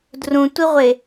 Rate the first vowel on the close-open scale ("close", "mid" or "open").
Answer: close